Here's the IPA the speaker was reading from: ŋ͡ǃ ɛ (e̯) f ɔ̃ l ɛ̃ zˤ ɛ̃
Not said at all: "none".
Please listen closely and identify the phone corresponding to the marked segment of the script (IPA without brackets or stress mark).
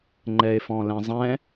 e̯